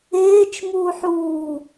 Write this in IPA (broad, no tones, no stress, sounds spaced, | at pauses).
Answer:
eː t͡ʃ m uː ħ uː